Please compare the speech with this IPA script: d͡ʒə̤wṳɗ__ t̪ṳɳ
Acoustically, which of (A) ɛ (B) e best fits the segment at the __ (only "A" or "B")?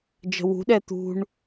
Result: A